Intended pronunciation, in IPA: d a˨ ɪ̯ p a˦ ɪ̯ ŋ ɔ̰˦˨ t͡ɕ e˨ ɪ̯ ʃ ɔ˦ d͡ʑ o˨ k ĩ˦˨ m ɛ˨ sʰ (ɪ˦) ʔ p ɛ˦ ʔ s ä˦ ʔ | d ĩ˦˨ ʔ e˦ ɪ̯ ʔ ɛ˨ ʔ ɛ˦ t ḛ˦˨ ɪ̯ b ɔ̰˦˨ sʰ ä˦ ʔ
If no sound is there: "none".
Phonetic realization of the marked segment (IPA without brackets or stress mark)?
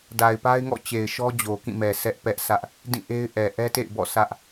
ɛ˦